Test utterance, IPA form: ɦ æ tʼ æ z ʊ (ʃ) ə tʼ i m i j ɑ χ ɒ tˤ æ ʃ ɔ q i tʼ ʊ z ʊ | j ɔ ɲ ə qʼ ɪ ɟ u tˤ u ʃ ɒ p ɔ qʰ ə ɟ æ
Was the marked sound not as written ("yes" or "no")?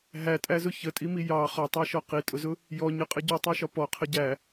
yes